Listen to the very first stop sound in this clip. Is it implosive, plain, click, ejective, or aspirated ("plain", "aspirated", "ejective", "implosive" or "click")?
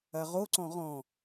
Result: click